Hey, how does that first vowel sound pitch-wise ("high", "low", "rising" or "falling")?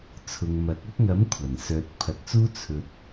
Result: low